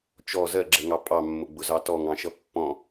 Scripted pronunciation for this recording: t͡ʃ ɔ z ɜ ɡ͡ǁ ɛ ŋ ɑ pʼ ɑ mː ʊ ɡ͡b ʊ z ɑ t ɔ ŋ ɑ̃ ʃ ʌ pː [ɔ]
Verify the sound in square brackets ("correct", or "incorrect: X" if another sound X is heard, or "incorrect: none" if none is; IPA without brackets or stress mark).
incorrect: ɔ̃